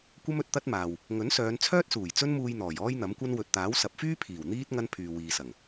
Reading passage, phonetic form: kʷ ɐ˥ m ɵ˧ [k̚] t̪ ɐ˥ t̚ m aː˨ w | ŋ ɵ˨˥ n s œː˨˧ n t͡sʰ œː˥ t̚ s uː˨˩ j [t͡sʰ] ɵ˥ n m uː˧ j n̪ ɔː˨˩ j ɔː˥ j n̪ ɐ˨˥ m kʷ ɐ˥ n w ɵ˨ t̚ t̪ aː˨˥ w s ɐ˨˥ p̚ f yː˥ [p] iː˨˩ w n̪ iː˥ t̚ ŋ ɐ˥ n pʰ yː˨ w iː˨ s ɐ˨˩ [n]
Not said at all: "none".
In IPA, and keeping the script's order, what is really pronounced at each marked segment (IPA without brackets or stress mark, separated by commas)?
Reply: t̚, t͡s, pʰ, ŋ